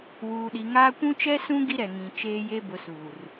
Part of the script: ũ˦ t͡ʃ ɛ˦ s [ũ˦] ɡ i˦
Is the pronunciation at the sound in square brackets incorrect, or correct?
correct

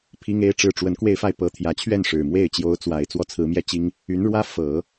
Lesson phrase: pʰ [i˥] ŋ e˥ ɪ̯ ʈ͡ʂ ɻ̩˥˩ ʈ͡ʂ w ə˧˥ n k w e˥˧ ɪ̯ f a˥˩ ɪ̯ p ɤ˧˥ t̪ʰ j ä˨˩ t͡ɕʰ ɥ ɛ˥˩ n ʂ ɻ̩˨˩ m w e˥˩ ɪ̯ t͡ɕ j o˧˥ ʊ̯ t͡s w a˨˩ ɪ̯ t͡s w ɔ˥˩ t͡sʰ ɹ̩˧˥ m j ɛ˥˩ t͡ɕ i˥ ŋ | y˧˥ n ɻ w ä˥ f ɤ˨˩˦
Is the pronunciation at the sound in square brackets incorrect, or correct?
correct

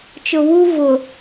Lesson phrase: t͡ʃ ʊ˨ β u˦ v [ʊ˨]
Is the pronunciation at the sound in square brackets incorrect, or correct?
correct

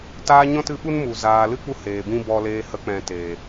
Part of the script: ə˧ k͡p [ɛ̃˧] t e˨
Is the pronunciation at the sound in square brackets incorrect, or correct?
incorrect: ɛ̃˨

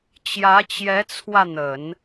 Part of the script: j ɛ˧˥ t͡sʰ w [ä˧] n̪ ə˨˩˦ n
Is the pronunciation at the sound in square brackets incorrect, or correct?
correct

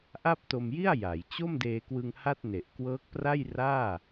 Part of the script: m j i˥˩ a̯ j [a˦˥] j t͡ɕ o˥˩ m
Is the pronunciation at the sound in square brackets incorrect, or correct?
incorrect: a˩˦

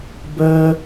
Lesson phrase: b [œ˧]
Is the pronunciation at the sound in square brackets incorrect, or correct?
correct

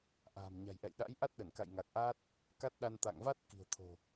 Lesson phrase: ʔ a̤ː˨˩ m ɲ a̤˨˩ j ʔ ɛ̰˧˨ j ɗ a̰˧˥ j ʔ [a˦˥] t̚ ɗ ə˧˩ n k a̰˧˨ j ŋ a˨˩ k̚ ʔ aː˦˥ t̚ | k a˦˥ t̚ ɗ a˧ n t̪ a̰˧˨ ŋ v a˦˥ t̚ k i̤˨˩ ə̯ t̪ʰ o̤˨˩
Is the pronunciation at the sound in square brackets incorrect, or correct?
correct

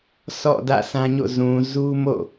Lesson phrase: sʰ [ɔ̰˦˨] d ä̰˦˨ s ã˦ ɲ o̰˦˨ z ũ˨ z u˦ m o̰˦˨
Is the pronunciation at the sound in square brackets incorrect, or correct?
correct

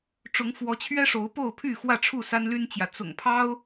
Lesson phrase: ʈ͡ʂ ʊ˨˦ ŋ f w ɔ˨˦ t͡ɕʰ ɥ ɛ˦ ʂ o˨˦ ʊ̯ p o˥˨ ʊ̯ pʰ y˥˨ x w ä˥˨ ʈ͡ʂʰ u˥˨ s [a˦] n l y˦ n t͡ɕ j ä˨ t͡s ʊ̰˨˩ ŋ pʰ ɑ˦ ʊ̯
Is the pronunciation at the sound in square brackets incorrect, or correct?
correct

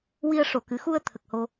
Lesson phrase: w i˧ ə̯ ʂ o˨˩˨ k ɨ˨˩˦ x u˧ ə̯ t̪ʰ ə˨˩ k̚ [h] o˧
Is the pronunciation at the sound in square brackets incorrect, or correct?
correct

